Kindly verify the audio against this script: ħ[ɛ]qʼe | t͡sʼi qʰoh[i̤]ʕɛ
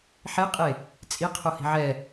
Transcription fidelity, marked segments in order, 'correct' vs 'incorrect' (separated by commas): incorrect, correct